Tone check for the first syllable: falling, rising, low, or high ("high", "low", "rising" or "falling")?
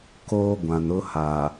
high